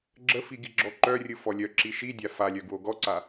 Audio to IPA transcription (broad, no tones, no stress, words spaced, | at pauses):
ɡ͡ǁəfi ɡiɡ͡ǁɔǃœrʲɯ fɔlʲœǁi ʃidʲa falʲœ ɡwoɡɔǀa